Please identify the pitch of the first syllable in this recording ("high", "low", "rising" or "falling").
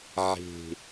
falling